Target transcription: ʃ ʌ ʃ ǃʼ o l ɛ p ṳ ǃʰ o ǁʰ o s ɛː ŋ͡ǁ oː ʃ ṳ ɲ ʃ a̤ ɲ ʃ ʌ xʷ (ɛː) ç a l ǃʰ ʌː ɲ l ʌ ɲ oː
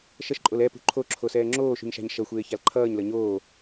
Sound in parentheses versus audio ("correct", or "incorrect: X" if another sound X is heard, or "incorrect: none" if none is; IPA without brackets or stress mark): incorrect: eː